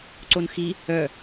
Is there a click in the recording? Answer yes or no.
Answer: yes